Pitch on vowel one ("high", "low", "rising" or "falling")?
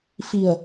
low